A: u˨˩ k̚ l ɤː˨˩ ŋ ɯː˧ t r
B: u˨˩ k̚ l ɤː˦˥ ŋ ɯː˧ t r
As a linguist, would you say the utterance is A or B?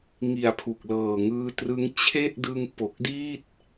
A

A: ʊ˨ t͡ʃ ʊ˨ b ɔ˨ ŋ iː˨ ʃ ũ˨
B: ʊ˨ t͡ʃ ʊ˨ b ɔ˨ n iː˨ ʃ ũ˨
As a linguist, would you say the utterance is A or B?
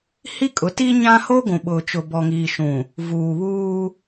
A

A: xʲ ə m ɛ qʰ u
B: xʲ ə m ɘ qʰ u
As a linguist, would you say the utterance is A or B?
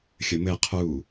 B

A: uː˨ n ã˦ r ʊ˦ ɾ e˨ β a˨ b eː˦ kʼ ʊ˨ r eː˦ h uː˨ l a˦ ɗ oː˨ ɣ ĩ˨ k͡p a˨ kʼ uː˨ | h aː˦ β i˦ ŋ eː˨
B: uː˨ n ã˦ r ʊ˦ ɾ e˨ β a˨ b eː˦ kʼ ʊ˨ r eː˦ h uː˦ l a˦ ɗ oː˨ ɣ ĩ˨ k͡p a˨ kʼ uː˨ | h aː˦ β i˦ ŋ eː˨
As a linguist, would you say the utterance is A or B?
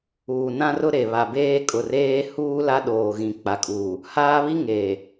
B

